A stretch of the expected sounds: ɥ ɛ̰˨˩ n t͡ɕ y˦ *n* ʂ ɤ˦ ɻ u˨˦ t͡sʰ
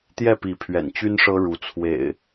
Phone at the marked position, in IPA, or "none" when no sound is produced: n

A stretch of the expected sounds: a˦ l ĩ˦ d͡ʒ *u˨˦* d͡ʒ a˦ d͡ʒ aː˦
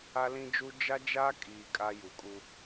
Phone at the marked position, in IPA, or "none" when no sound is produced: u˦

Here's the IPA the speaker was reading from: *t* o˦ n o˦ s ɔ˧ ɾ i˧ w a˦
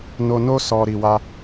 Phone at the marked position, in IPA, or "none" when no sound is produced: n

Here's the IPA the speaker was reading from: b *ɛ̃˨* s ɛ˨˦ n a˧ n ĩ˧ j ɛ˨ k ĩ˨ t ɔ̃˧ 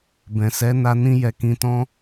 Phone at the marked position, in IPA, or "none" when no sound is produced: ɛ̃˨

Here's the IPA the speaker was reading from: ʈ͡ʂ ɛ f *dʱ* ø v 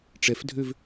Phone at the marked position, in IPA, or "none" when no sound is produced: dʱ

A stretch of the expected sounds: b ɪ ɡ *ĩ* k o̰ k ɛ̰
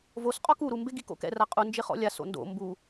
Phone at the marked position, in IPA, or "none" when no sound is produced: i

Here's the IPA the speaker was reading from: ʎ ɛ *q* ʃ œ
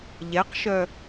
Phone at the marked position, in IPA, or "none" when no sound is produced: q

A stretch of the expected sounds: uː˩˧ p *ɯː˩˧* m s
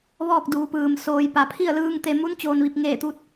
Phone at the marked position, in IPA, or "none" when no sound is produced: ɯː˩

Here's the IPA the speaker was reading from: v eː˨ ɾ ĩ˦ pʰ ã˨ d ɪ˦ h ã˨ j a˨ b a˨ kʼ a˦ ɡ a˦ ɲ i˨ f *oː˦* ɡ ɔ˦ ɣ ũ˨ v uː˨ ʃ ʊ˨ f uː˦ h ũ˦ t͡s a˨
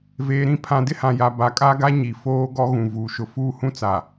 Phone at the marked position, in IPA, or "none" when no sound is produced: oː˦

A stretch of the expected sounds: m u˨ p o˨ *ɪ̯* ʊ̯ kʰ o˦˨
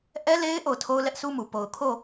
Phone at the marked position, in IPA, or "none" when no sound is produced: none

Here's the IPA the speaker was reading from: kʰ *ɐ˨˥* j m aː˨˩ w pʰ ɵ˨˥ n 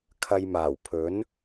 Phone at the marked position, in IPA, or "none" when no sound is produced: ɐ˧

